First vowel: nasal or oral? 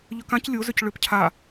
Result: oral